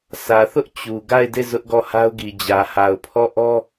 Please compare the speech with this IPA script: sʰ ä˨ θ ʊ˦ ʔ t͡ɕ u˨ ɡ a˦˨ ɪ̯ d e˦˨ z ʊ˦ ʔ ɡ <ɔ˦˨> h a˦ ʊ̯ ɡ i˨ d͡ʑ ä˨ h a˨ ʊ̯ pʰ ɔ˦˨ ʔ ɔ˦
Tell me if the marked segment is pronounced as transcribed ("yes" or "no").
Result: yes